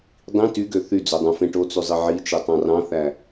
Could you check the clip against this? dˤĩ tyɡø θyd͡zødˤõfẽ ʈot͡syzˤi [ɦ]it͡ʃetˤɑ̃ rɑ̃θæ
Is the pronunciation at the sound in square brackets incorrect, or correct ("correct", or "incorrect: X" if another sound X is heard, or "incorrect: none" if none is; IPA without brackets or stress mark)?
incorrect: ʕ